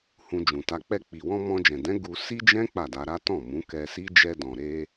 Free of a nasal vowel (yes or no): no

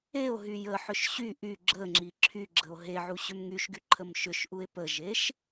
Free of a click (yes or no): no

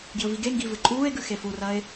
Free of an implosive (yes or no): yes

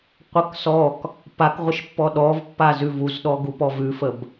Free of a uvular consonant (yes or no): no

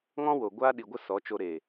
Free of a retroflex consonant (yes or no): yes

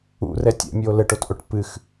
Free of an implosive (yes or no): yes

